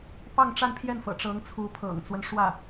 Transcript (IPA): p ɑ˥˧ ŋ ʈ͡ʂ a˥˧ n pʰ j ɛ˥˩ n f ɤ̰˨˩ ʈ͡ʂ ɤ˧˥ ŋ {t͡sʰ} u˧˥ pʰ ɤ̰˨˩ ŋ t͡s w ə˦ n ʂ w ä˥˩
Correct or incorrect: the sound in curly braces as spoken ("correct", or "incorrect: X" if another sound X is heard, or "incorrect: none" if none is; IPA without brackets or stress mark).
correct